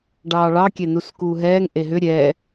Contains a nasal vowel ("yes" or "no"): no